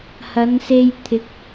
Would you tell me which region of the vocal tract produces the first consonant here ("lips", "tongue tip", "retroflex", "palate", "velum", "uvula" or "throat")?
throat